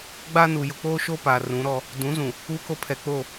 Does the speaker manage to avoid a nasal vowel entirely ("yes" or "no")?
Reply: no